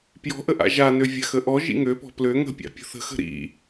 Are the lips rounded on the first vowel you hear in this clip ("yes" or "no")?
yes